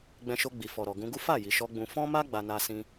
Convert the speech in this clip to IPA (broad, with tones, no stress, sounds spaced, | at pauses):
ɡ͡b ɛ̃˧ ʃ o˧ ɡ͡b i˨ f ɔ˨ ɾ ɔ˨ ɡ ũ˧ ɡ u˦ f a˦˨ j i˨ ʃ ɔ˧ ɡ͡b ũ˧ f ɔ̃˦ m a˦ ɡ͡b a˧ n a˧ s ĩ˧